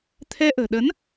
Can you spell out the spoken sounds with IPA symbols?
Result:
t̪ʰɛ˧ʔə̤ː˨˩ ɗə˨˦n

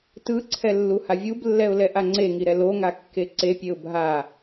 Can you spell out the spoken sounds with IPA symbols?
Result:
tɯǀʰɛlːu havʲublːɛʊ̯lɛ ʔaŋ͡ǀeŋiɾɛ loŋakːe ǀepʲeʊ̯ bʱa

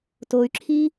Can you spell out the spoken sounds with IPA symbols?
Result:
toy̯ǁʰi

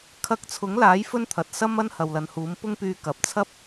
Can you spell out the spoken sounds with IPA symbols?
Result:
kʰɐ˧k̚t͡sʰʊ˨˥ŋlaː˨˥j fɵ˥nt̪ʰɐ˨t̚sɐ˥mɐ˥n hɐ˨wlɐ˨˧nhuː˨˥m pʊ˥ŋpyː˧ kɐ˨p̚t͡sʰɐ˥p̚

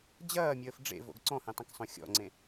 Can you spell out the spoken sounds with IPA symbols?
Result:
d͡ʑɐːmʲəːf ɖ͡ʐḛvo̰ɡ ǀɔ̃hẽtˤɐ̃ksˤõ xʲɔ̰ŋ͡ǀẽ

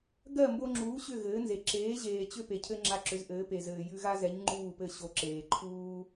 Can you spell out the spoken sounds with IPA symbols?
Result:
ɡɜ˥˩ mbo˧ŋ͡ǁuː˩˥ ɕʏ˥˩ɣɘː˩˥nze˩ ǁeː˩˥ ʑeː˩ t͡ɕʏ˥˩ pe˩cʰɘ˧ ŋ͡ǁa˧ǁʏ˩˥zʔɘː˩˥ pe˩ zɘː˩ jʉ˧ɣa˥zɛ˩˥ɲ ŋ͡ǃuː˥˩pɘ˥˩ ɕo˩˥ ǁeː˩ ǃʰuː˥

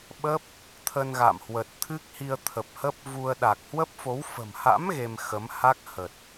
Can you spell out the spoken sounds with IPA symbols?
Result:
ɓə˦˥p̚ | t̪ʰə˧nɣa̰˧˨m hwə˨˩t̚t̪ʰɨ˦˥k̚hi˧ə̯ t̪ʰə˨˩p̚hə˦˥p̚vu˧ə̯ ɗa˨˩k̚ hwə˦˥p̚fo˨˦w fə̤˨˩mha̰˧˥m ɣe˧mxə˨˦m ha˦˥k̚hə˨˩t̚

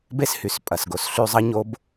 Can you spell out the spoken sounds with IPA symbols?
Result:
be˥shy˩spʼɐ˩sɡo˩˧s ɬy˧zˤɐ˥ɲo˧˥b

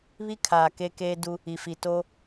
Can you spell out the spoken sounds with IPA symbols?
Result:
βi˦ kʰaː˨ke˦keː˦du˦ | i˨fi˨ to˦

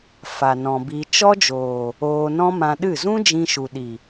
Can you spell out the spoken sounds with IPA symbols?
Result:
fa˨nɔ̃˨bi˧ t͡ʃɔ˦ d͡ʒoː˨ | oː˧nɔ̃˦mã˧ɗɨ˦˨ zũ˦ d͡ʒĩ˧ʃu˨ɗi˨

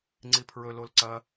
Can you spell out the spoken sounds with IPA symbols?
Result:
ŋ͡ǀipʰɹɵ lolǀɐ

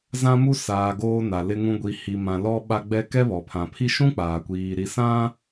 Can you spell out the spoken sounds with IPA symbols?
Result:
zã˦mu˦ saː˨ ɡoː˦na˨lɪ˦ŋũ˦ ɡʷi˨hi˨mã˨ lɔ˦ɓa˦ɡ͡bɛ˦ kɛ˦βɔ˨pʰã˨pʰi˦ ʃũ˦ k͡paː˨kʷiː˨ ɾi˨sã˦

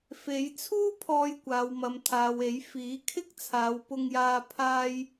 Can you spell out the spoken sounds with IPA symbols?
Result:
fe˨˧j t͡sʰuː˥ pʰɔː˧jkʷaː˨wmɐ˨m t̪ʰaː˨we˨˥j fiː˨˥kʰɪ˥k̚t͡sʰaː˨˧w pʊ˧ŋjaː˧ pʰaː˧j

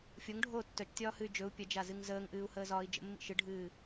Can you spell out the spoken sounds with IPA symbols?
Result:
fʲoŋɖʱoː tːœt͡ʃtʲɒːhɨy̯ d͡ʒɵu̯ pʲəd͡ʒazɨŋ zəːŋʔɨːu̯həːzɒːi̯ d͡ʒə̰mːḭ ʃɨɖʱɨː

